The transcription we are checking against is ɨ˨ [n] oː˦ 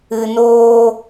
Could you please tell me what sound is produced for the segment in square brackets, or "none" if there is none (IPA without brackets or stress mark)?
n